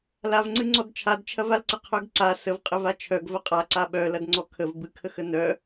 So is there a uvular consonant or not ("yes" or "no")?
yes